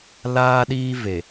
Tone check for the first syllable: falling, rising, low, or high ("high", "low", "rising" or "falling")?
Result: high